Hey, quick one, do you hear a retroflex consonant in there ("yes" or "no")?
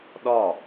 no